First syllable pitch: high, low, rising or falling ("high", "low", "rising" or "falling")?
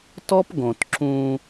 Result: high